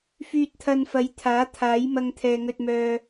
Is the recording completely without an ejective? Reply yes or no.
yes